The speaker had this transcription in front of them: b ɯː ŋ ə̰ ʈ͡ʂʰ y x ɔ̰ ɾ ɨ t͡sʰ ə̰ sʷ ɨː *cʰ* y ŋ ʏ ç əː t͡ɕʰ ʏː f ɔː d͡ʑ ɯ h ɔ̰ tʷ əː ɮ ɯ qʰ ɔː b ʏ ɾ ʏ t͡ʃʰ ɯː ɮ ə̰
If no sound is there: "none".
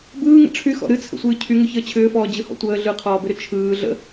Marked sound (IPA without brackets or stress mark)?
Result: cʰ